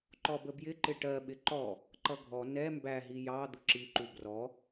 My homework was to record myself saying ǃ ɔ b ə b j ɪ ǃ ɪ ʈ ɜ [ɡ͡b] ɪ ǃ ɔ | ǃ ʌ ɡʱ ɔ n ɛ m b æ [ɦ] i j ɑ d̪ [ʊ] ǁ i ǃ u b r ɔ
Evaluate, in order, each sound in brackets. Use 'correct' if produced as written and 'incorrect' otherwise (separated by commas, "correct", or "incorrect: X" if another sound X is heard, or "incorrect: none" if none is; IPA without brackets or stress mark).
incorrect: ɓ, correct, correct